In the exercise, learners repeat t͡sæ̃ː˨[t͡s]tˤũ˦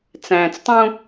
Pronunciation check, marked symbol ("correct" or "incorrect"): correct